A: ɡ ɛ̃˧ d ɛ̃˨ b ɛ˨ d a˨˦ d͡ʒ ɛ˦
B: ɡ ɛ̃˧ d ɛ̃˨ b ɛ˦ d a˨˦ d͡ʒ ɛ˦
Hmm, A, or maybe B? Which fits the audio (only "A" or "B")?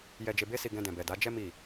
A